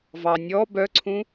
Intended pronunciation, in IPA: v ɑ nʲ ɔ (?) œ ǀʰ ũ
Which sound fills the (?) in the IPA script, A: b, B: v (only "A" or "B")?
A